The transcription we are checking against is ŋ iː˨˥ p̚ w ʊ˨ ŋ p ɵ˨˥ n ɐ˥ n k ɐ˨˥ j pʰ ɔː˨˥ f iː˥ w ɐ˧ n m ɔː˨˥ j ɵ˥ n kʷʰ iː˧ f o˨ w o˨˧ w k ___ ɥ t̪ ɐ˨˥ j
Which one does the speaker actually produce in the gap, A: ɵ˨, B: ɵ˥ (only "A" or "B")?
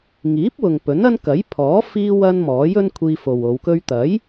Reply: B